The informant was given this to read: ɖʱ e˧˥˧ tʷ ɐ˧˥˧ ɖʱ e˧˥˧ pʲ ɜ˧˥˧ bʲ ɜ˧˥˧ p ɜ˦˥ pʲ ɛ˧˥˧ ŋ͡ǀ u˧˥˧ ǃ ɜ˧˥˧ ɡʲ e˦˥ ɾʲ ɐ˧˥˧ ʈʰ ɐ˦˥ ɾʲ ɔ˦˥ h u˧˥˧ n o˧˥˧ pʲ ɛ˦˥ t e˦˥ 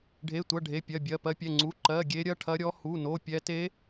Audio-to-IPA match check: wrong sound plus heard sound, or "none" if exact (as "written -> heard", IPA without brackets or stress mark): none